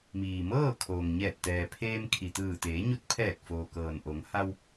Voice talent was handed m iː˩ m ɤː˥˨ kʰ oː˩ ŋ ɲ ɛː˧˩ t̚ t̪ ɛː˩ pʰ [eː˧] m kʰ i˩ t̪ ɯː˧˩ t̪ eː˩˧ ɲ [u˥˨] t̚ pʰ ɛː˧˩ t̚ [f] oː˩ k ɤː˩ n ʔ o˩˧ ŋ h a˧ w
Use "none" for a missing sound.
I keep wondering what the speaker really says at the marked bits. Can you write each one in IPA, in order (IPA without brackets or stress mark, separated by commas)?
eː˧, u˧, f